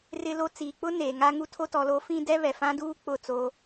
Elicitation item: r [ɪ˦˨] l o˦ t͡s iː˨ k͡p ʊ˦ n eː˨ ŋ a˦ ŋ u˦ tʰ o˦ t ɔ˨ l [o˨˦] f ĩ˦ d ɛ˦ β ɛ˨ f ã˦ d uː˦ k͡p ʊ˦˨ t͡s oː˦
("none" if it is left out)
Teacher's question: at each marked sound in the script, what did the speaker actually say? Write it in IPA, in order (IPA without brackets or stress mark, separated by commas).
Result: ɪ˦, o˨˦